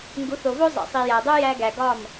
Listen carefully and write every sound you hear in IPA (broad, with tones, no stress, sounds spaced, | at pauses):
ŋ ɡ u˨˦ θ o˨ v o˦ zˤ ḭ˨ sˤ i˨ j æ˨ dˤ o˦ j æ˧ ɡ æ˨ ɡ ɒ˦˨ m